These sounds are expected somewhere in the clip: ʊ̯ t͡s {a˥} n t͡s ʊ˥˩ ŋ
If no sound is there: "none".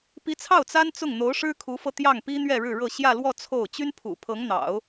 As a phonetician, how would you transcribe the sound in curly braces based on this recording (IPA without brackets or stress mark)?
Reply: a˥